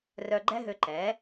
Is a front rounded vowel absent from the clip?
no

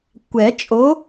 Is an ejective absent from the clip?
no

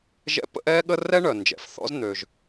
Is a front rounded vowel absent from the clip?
no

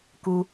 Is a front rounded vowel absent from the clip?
yes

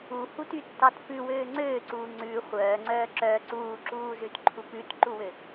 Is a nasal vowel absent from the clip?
yes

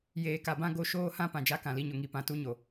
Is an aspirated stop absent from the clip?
yes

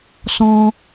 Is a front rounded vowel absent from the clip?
yes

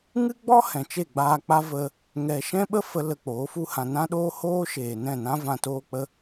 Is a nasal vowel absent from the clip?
no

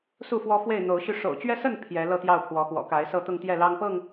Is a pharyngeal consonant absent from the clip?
yes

